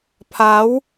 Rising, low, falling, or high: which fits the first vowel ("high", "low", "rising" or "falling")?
rising